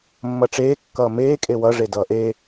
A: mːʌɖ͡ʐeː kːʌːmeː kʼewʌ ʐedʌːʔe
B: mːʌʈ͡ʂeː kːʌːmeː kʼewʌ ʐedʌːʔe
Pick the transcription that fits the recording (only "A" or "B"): B